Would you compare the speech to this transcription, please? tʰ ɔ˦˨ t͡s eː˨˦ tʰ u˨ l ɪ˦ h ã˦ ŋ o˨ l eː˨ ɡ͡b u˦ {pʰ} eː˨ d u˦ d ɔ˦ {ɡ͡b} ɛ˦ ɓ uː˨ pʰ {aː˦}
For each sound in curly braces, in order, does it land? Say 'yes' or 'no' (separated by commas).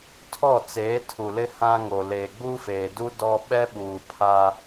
no, no, yes